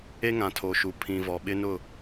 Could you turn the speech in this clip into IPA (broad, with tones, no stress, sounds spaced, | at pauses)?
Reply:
e˦ ŋ ã˨ tʰ o˨ ʃ u˨ pʰ ĩ˨ v ɔ˨ ɓ ɪ˦ n ʊ˦˨